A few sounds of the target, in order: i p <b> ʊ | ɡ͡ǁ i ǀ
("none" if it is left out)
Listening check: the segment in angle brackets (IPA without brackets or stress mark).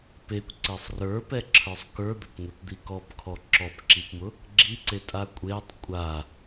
m